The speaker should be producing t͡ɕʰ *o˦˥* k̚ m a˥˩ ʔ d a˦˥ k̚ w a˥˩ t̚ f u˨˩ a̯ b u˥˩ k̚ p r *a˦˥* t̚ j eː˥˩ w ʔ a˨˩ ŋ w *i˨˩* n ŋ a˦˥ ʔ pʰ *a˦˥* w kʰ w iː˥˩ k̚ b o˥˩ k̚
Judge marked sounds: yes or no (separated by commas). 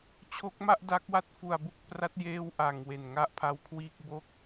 yes, yes, no, yes